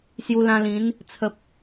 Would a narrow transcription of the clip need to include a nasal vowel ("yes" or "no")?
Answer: yes